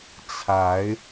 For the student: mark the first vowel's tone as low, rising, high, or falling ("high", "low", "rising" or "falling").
rising